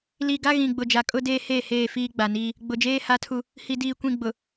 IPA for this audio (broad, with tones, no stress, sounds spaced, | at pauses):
l i˨ ɡ a˦ ɣ ĩ˨ ɡ͡b ʊ˨ d͡ʒ a˨ kʼ ʊ˦ d eː˦ h eː˦˨ h eː˦˨ f iː˦ ɡ͡b a˨ n iː˦ | ɡ͡b ʊ˨ d͡ʒ eː˦ h a˦ tʰ u˦ | h i˨ d iː˨ kʷ ĩ˨ ɡ͡b ʊ˨